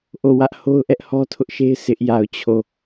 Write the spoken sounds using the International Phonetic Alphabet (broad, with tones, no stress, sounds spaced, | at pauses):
ʔ o˦˨ w ä˦ ʔ h o˦ ʊ̯ ʔ ɛ˦ ʔ h ɔ˦ tʰ ʊ˦ ʔ ʃ e˦ ɪ̯ sʰ ɪ˦ ʔ j a˦˨ ʊ̯ t͡ɕʰ o˦˨